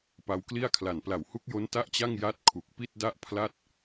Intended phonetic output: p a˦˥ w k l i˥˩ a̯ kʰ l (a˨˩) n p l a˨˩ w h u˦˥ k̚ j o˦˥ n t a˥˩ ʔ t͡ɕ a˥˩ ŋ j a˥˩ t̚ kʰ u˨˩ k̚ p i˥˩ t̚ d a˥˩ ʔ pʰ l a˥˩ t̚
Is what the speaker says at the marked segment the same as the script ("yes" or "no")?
yes